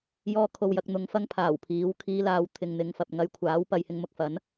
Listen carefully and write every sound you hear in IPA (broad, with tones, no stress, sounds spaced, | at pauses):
j ɔː˧ kʰ o˨ w j ɐ˨ k̚ n̪ ʊ˨˧ ŋ f ɐ˥ ŋ pʰ aː˨˩ w pʰ iː˨˥ w kʰ iː˧ l aː˨˧ w t̪ʰ ɪ˨ ŋ n̪ ɪ˨˧ ŋ f ɐ˨ p̚ ŋ ɐ˧ j kʷʰ aː˨˥ w p ɐ˨˧ j h ɪ˧ ŋ m ʊ˧ k̚ f ɐ˨˥ n